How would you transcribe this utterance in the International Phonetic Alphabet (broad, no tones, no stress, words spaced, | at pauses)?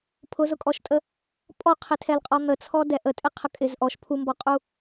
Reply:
pʰʊzʊkʼɔʃtʼə | pʼɔqʰɪtʰɛlqʼɔ n̪ət͡sʰɔdɛ ʔətʼɪqʰə kʼɪz ʔɔʃ pʰumbɔqʼu